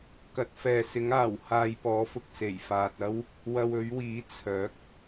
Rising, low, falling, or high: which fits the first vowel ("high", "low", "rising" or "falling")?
rising